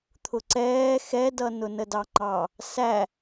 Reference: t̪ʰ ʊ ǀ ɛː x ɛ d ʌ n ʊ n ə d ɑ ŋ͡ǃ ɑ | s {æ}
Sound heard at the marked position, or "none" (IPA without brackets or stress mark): æ